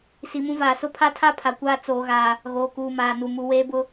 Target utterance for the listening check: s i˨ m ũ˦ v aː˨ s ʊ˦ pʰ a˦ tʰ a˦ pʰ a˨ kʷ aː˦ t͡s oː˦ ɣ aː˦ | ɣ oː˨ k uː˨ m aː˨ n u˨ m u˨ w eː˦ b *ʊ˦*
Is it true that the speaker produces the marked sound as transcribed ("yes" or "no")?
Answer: yes